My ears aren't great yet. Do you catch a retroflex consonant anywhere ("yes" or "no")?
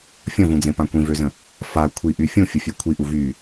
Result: no